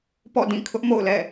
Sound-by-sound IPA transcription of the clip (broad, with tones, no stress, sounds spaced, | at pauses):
p ɔ̰˦˨ d ĩ˦˨ kʰ ʊ˦ ʔ m o̰˦˨ ʊ̯ l ɛ̰˦˨